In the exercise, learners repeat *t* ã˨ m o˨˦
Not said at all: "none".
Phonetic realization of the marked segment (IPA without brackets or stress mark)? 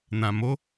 n